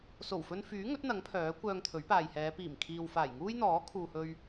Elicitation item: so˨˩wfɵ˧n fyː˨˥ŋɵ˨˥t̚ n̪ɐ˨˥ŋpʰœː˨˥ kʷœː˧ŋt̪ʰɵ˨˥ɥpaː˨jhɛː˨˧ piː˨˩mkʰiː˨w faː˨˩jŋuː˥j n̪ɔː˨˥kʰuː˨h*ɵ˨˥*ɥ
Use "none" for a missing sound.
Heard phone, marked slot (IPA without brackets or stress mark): ɵ˧